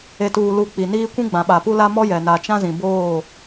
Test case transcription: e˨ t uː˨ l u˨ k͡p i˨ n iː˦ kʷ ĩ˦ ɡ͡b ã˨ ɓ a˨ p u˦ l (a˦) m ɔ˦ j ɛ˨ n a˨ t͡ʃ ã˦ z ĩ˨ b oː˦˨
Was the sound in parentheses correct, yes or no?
yes